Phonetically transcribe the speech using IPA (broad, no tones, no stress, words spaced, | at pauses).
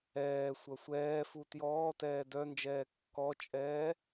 ɛː sʷɐsʷɛːfu tjɔːtɛː dœnd͡ʒɛː kːɔt͡ʃʼɛː